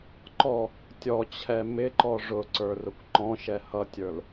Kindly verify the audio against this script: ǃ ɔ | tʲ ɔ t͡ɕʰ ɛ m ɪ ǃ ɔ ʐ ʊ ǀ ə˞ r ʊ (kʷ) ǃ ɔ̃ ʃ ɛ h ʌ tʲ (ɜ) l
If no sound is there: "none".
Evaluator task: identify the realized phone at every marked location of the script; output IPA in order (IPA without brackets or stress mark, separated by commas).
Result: kʷ, ə˞